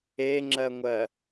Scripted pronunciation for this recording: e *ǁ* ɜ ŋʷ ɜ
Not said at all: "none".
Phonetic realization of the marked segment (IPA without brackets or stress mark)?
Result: ŋ͡ǁ